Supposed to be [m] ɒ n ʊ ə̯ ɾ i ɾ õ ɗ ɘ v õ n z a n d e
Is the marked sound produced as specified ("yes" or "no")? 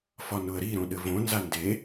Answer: no